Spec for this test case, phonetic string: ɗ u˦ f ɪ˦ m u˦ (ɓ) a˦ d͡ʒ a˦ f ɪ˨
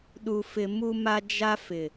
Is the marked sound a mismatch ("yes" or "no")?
yes